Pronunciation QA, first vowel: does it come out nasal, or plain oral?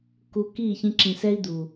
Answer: oral